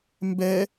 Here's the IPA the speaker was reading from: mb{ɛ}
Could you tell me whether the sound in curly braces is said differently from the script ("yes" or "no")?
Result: no